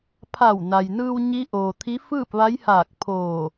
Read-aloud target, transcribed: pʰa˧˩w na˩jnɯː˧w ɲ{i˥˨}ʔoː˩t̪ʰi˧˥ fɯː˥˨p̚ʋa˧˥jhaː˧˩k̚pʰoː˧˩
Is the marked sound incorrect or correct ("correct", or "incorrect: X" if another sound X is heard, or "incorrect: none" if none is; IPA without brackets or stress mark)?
incorrect: i˧˥